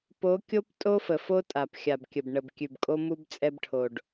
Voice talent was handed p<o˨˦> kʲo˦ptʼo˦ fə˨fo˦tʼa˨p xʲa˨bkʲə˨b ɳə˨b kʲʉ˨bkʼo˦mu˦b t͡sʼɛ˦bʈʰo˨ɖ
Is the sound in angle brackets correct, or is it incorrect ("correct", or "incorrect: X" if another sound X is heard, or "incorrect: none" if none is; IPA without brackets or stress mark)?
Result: correct